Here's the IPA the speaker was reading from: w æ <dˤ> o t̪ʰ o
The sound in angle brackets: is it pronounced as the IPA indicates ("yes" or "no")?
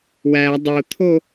yes